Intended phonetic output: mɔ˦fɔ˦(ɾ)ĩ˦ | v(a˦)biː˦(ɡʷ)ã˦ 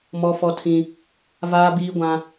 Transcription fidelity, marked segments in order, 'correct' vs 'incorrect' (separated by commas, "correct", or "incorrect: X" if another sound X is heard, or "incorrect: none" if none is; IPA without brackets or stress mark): incorrect: tʰ, incorrect: aː˦, correct